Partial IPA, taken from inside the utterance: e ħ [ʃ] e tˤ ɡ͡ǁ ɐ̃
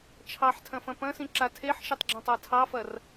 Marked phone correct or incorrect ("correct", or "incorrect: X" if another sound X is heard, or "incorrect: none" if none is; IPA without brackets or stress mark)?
correct